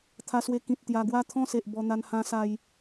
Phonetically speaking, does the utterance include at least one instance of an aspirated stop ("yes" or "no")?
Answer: yes